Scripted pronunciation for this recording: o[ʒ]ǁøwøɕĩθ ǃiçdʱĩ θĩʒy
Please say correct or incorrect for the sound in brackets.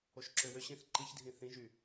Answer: incorrect: ʃ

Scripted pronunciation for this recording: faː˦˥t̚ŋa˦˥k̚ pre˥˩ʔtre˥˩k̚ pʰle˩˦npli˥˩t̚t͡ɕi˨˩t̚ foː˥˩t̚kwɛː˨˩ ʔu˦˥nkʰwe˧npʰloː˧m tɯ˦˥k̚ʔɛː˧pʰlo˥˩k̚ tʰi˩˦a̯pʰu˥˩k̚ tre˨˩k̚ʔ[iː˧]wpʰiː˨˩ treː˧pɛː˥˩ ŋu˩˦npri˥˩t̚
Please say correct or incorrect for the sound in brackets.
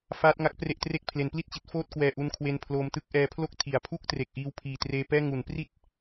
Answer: correct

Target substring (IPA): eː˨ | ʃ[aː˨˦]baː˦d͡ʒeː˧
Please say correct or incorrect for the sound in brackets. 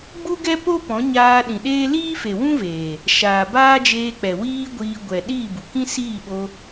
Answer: incorrect: aː˨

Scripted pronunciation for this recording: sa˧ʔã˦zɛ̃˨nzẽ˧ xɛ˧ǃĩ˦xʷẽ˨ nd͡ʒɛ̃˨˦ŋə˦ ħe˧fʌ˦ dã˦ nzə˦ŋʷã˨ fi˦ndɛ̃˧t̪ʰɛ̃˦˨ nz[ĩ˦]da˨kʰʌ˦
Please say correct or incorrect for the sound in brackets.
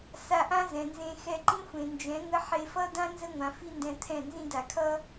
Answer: incorrect: ĩ˧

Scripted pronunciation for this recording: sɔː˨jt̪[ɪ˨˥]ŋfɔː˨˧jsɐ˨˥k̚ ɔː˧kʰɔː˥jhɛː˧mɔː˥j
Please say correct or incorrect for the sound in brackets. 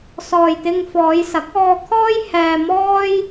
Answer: incorrect: ɪ˧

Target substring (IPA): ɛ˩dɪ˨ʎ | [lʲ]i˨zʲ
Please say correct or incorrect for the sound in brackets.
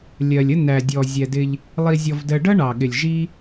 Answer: incorrect: lˠ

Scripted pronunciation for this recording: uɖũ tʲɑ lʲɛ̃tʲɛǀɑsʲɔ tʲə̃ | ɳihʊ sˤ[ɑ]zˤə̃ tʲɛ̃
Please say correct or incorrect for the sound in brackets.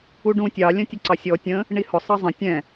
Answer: incorrect: ʌ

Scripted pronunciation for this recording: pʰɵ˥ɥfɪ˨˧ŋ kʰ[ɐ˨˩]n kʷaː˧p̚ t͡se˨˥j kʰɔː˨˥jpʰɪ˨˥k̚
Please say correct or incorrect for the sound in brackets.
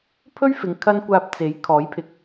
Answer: incorrect: ɐ˥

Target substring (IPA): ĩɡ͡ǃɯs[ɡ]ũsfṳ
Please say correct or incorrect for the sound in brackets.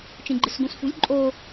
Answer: correct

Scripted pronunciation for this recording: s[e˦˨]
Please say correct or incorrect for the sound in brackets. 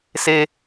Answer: incorrect: e˦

